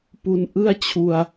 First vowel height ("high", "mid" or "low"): high